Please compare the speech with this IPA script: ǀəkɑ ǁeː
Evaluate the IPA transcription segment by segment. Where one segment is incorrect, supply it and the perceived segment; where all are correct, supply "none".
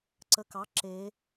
none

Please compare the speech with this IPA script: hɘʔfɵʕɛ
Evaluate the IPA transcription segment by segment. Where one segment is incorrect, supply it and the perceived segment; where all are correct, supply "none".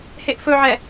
ɘ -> e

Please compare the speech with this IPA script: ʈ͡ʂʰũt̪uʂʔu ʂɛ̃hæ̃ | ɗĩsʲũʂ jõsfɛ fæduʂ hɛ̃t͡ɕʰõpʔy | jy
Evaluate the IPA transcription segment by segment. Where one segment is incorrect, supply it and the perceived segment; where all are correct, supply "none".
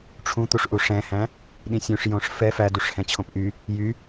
s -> ʂ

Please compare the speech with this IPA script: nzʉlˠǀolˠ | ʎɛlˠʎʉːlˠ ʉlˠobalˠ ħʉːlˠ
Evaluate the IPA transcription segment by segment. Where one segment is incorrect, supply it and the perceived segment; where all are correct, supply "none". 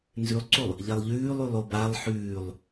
none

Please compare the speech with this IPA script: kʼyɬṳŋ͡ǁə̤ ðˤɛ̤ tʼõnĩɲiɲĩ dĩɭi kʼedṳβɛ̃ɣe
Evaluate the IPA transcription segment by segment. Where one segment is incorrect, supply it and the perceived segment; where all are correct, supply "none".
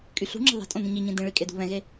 none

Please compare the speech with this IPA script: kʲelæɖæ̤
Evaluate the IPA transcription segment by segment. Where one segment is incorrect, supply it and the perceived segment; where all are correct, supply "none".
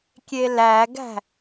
ɖ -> ɡ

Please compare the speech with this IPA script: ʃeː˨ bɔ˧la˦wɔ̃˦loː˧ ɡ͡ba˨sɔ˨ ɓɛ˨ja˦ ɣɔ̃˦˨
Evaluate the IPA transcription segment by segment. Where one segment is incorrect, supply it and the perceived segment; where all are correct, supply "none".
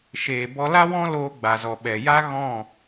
s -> z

